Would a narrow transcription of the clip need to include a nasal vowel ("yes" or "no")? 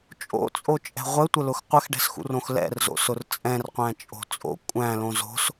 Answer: yes